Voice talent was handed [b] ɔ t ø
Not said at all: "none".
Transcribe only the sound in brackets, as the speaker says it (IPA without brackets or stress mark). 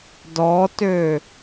d